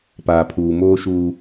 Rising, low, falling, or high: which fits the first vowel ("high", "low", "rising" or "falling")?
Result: low